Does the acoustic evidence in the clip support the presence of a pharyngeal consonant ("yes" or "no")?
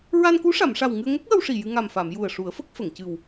no